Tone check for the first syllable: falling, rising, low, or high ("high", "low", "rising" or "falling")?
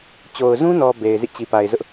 low